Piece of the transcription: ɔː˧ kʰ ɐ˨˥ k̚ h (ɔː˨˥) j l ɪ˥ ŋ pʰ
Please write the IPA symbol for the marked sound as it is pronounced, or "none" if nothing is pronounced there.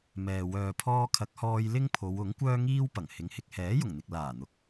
ɔː˧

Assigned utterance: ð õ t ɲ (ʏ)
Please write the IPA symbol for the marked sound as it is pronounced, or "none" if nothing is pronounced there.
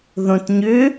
ʏ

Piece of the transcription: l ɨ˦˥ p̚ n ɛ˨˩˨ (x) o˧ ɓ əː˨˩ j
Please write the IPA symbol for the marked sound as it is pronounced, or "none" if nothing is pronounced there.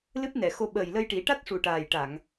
x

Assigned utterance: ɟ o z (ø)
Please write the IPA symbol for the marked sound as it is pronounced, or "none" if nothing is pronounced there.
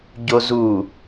u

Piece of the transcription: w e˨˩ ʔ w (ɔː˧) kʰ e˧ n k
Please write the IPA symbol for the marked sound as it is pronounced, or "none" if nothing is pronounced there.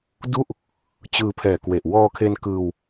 ɔː˧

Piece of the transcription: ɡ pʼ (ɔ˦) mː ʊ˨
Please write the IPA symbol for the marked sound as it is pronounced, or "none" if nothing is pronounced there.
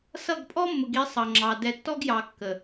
ɔ˦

